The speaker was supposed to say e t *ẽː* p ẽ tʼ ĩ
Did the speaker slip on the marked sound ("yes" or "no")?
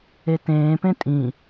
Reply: no